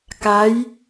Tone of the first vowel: rising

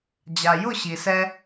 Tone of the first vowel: low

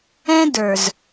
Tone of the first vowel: high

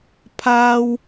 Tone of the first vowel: high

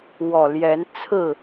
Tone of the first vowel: low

